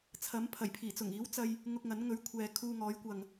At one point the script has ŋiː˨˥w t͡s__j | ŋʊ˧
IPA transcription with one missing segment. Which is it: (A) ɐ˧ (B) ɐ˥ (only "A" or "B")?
A